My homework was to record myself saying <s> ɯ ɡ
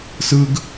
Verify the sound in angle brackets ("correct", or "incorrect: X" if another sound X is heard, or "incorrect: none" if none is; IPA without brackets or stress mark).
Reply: correct